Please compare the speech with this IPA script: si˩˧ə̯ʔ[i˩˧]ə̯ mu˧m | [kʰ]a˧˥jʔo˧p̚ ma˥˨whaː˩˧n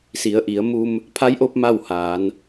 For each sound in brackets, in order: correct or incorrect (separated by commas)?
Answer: correct, incorrect